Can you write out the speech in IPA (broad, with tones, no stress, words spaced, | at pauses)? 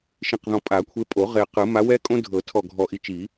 ʃĩ˨˩qðɔ̃˨˩ pʼa˨˩˦kʷʰe˨˦pʼo˨˩˦ ʁe˨˩ qɯ˨˩˦ ma˨˦ wɛ˦kʼõ˦dʱɤ˨˩˦ tʰɔ˨˩ɡʱɔ˨˩ʔi˨˦t͡ʃi˨˩˦